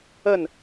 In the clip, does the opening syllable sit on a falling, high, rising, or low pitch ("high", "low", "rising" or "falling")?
falling